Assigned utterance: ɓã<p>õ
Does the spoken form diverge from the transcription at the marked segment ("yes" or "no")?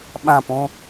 no